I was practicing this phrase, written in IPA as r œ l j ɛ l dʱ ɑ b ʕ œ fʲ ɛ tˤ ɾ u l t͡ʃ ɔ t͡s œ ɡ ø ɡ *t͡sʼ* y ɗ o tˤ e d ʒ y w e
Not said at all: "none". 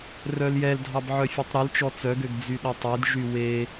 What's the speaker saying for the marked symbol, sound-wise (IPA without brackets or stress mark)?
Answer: d͡z